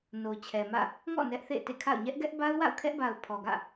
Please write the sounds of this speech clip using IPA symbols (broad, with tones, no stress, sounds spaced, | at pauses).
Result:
n o˨ t͡ɕʰ ɛ˨ m ä̰˦˨ | ŋ ɔ̰˦˨ n ɛ˦ ʔ θ ḛ˦˨ ɪ̯ t ḛ˦˨ kʰ a̰˦˨ ʊ̯ ɲ ɛ˦ ʔ ɡ ɛ˦ ʔ b a˦ ʊ̯ w a̰˦˨ ʊ̯ kʰ ɛ˦ ʔ b a˨ ʊ̯ pʰ ɔ˨ ɡ ä̰˦˨